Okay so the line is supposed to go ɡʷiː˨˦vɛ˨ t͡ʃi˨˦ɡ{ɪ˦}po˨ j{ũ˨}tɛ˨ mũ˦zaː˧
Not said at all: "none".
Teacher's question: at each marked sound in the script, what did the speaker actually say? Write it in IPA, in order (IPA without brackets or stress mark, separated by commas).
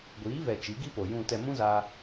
i˦, ũ˨